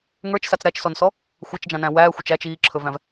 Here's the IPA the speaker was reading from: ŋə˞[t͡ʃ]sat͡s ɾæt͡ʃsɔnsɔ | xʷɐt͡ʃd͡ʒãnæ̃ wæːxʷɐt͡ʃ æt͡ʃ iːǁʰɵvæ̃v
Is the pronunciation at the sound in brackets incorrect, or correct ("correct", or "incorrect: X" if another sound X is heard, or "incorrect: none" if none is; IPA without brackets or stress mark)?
correct